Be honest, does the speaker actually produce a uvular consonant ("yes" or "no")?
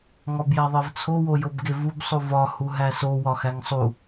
no